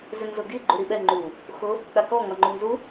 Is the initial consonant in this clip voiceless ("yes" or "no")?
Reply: no